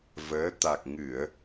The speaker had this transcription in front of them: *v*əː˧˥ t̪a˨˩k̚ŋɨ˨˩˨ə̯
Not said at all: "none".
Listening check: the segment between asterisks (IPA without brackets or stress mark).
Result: v